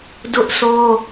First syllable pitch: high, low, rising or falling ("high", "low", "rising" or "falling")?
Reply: high